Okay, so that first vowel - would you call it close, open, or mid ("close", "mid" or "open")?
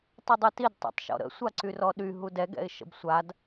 close